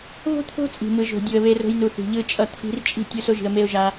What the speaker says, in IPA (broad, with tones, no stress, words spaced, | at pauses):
βo̤˦t̪ʰo̤˦ t͡sʼi̤˨mɯ˨ ʒo̤˨ dʲu˨ə̯βe˧ro̤˧jnu˨ θi̤˨ʎɯ˧t͡ʃʼʌ˧ t̪ʰi̤˧rt͡ʃʼi̤˦˨ tʲu˧so˧ʒi̤˨ə̯ me˧ʊ̯ʒa˧